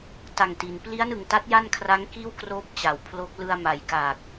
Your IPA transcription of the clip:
t a˨˩ ŋ t i˩˦ n p l i˦˥ a̯ n ɯ˨˩ ŋ t a˦˥ t̚ j a˥˩ n kʰ r a˦˥ ŋ k iː˥˩ w k r oː˦˥ p̚ t͡ɕ a˩˦ w pʰ l o˦˥ k̚ l ɯ˧ a̯ m a˩˦ j k a˨˩ k̚

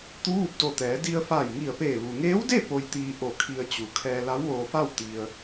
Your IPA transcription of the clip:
t̪ u˧˥ ʋ u˧ p̚ d o˧˩ t̪ ɛː˩˧ d i˧ ə̯ f aː˧˩ j ŋ i˧˩ ə̯ p eː˧˩ ʋ u˩ ŋ eː˧˥ w d e˥˨ p o˧ j t̪ iː˧ ʔ o˧˩ kʰ i˧ ə̯ t͡ɕ u˩˧ kʰ ɛː˧ l a˧˥ w ʋ oː˧ f a˥˨ w t̪ i˧ ə̯

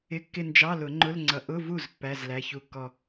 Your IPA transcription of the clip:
ɪ˧˥˧ kː ɪ˥˧ n d͡ʒ ɑ˧˥˧ l ʊ˨˩˦ ŋ͡ǃ ʊ˧˥˧ l ŋ͡ǀ ʌ˨˥ ʔ ʊ˧˥˧ v u˥˩ z pː æ˧˥˧ z l æ˧˥˧ ç u˥˩ kː ɔ˥˧

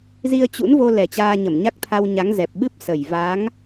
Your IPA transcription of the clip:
z i˧ ə̯ t͡ɕ ṵ˧˥ n v o˧ l ɛ˨˩ t͡ɕ aː˧ ɲ ə˧˩ m ɲ a˦˥ k̚ t̪ʰ a˧ w ɲ a˨˦ ŋ z ɛ˨˩ p̚ ɓ ɨ˦˥ p̚ s ə˨˩ j v a˨˦ ŋ

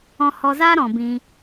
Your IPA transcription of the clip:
ɔ̃˧ h ɔ˧ z aː˦ ɾ ɔ̃˨ b ĩ˧

